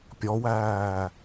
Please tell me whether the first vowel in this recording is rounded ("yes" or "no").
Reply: yes